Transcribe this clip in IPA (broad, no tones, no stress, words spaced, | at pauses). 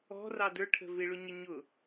ɔ̤rɑ də˞ʈʰə̤ vɪɭʊɲə ɲʊ